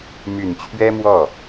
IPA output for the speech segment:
my˨˩nt͡ɕʰɥɛ˥mwɔ˥˩

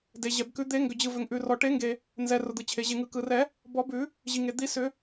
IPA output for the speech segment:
de˩ʑɛ˩bkʉ˨˩˦ d̪e˨˩˦ ŋɡʏ˩d͡ʑɯ˩vʏ˩ŋʔʉ˩ rɔ˩ʈe˨˩˦ŋɡe˩ | nzɛ˩ rʊ˩d̪ɯ˩t͡ɕʰe˩ ʑe˩ŋɯ˩kɯ˩rɛ˨˩˦ | bɔ˨˩˦bʉ˨˩˦ | ʑi˩ŋe˩ d̪i˨˩˦ sʏ˨˩˦

